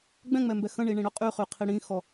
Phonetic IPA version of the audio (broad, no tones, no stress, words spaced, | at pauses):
ɡ͡bɛ̃ŋ͡mɛmbɛ xə̃ɳiɳĩɽœ qʼyχyqʰi ɽĩxɔ